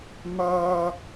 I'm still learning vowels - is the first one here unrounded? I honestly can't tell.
yes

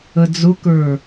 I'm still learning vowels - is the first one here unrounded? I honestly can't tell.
yes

